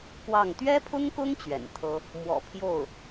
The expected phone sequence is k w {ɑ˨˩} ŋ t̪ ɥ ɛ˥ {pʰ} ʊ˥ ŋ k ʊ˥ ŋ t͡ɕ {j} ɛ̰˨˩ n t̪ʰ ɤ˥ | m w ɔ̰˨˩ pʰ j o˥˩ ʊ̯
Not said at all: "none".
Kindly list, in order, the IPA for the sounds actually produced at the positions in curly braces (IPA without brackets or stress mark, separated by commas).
ɑ˥˩, pʰ, ɥ